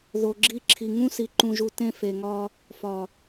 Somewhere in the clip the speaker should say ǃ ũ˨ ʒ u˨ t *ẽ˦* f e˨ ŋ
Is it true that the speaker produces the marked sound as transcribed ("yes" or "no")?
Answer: yes